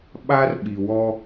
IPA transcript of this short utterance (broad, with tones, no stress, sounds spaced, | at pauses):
ɓ a˦ r ɓ i˨ w ɔ˦